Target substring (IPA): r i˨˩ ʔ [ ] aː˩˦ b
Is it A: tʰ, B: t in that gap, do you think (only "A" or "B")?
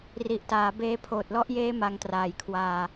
B